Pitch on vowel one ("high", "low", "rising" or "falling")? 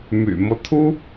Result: low